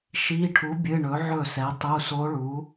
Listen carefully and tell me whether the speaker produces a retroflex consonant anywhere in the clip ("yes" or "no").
yes